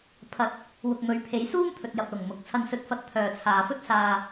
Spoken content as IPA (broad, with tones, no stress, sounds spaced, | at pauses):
pʰ ɐ˧ t̚ | w ʊ˨ k̚ m ɵ˨˧ ɥ pʰ e˨˧ j s uː˥ m t̪ʰ ɵ˨ t̚ j ɐ˨ p̚ l ʊ˨˩ ŋ m ʊ˨˥ k̚ t͡sʰ ɐ˧ n s ɵ˧ t̚ f ɐ˧ t̚ t̪ʰ œː˨ t͡sʰ aː˨ f ɵ˥ t̚ s aː˧